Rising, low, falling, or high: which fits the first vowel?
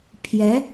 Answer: rising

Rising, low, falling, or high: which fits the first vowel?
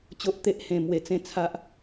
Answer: low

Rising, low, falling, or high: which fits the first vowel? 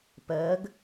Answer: rising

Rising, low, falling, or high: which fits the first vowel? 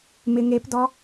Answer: low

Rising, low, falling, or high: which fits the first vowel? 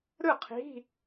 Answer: falling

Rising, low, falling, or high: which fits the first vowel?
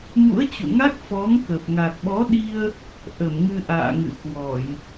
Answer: rising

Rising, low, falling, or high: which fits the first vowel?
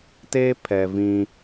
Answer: high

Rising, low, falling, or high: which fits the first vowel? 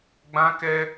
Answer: high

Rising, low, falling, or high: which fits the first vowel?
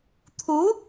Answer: rising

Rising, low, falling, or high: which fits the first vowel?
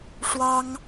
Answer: high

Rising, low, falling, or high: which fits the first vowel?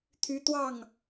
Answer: high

